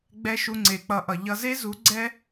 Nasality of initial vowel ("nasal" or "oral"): oral